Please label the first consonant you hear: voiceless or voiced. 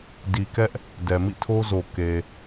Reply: voiced